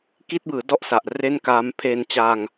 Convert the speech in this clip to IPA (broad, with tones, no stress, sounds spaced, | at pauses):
k i˦˥ t̚ b ɯː˩˦ d ɔ˥˩ ʔ s a˨˩ ʔ r e˥˩ n k aː˦˥ m pʰ e˧ n t͡ɕ a˧ ŋ